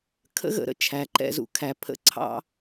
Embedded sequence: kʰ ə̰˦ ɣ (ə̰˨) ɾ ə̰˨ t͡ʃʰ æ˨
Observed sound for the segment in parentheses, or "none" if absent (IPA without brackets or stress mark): ə̰˧